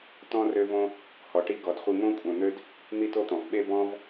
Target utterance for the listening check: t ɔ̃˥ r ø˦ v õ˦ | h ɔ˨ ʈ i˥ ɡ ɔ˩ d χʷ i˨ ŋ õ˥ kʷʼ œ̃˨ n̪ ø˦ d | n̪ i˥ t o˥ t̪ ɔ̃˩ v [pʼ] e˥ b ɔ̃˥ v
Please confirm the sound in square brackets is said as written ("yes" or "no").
no